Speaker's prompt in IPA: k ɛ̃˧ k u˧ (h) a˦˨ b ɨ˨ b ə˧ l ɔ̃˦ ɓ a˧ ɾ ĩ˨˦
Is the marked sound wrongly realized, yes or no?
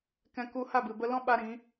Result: no